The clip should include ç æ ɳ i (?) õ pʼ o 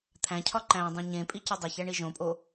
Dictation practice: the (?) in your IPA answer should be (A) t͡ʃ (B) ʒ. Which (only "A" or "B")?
B